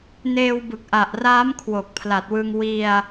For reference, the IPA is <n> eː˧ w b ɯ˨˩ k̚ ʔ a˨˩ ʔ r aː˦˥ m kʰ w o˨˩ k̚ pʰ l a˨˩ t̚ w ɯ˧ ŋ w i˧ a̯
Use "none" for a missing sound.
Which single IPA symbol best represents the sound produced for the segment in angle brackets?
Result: n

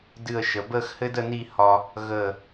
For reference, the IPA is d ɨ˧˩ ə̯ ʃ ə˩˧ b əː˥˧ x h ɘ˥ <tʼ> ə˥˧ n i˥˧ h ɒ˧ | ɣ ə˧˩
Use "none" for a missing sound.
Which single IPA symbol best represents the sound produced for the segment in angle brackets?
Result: d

